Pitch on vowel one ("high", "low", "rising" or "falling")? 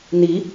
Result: rising